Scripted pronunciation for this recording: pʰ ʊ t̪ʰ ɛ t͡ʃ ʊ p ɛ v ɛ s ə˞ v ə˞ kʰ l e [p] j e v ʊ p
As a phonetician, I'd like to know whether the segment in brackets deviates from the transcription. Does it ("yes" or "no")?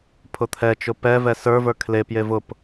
no